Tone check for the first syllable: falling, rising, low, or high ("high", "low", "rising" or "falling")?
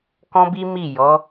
high